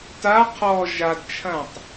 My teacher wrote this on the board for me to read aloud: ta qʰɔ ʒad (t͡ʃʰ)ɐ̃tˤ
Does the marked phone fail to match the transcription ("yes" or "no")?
no